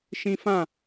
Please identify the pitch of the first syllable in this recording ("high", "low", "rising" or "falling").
high